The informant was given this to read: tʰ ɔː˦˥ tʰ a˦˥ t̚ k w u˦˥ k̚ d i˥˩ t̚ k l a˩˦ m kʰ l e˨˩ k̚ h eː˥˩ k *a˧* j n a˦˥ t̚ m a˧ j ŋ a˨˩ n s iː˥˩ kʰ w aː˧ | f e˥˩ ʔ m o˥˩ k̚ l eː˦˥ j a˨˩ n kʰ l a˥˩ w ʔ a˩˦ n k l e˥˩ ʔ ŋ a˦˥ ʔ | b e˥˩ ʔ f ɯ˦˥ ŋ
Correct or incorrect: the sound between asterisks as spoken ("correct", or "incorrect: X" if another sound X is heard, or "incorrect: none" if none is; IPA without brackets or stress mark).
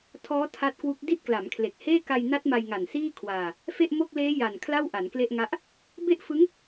correct